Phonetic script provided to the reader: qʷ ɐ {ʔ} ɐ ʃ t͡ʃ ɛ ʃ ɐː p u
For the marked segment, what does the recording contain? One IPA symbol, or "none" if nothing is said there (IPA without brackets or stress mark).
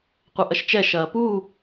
ʔ